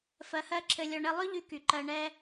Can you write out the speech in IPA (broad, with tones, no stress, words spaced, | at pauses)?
fɜ˧hɜ˦ǁʰɘ˧lʲɔ˧ ɳɘ˧lˠʉ˦ ʎy˦ky˨ǃɜ˧ ɳɛ˦